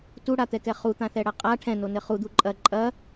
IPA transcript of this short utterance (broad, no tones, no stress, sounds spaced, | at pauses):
t u ɽ a t̪ ɛ k ɛ χ u t̪ ã θ ɛ ɽ ɐ qʼ a ʈʰ ɛ̃ n o n ɘ χ u d̪ u ǃʼ ɐ ǃʼ ɐ